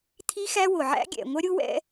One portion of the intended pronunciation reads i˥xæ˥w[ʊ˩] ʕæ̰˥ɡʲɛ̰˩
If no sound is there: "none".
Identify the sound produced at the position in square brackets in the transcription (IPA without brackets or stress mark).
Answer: ʊ˩